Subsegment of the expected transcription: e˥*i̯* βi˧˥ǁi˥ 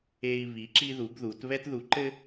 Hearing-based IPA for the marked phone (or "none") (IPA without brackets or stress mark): i̯